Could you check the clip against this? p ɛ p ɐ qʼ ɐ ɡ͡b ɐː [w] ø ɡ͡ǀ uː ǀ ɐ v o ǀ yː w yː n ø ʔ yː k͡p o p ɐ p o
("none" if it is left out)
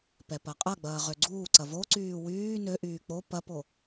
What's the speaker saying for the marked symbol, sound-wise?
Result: ʁ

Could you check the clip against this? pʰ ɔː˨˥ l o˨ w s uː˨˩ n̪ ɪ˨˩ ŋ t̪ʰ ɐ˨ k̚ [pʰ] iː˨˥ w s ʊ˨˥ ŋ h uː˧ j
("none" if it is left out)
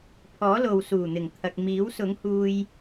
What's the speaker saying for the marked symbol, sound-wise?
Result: m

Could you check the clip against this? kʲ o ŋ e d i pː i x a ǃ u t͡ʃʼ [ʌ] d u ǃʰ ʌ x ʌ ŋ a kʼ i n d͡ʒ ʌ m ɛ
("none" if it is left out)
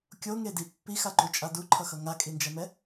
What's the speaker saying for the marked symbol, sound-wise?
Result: a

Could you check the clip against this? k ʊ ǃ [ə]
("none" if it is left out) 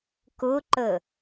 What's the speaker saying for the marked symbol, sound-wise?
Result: ə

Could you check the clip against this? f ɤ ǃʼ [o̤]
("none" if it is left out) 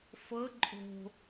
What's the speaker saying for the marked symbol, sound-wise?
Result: o̤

